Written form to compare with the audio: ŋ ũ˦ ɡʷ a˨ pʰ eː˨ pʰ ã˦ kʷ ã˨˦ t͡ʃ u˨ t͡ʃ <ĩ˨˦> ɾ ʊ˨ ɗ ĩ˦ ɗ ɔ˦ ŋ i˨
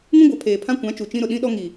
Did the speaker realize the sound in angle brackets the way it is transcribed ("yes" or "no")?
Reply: no